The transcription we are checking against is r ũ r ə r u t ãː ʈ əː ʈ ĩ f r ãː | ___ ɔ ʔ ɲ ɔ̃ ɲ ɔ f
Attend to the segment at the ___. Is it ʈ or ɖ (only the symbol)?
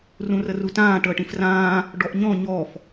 ɖ